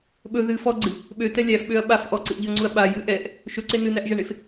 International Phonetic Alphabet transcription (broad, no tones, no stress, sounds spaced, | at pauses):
ɓ ɵ ð ɨ f ɔ ɡ͡ǀ ɨ | ɓ ø t ɛ lʲ æ f ɓ ø ɐ̯ ɓ a f ʔ ɔ ǀ ɨ ʔ ʎ ɨ ɐ̯ ŋ͡ǀ u ɐ̯ ɓ a j ɨ ʔ ɛ ʔ | ʃ ɵ ǀ e n ɨ n æ ʔ ʒ æ ɳ e f